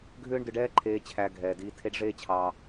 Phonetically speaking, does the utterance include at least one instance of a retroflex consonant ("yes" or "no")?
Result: yes